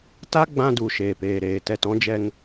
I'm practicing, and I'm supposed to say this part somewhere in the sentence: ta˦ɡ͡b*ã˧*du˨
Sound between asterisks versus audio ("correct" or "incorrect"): correct